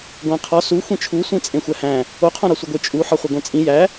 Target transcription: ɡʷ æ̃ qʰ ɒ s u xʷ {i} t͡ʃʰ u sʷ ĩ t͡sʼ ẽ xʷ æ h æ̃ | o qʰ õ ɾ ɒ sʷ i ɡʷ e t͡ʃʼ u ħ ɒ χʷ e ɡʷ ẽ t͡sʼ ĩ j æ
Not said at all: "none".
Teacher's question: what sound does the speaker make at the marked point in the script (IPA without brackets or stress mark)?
ĩ